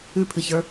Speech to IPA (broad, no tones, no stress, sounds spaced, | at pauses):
ʉ pʰ ɨ ç ə˞